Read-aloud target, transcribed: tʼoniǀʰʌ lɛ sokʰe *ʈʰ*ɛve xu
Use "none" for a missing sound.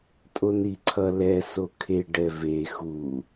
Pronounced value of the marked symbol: ɖ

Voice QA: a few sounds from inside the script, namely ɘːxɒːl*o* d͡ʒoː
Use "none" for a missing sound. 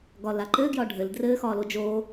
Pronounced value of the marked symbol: o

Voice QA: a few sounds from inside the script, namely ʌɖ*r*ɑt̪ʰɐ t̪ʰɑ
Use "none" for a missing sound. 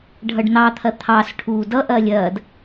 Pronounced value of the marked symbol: n̪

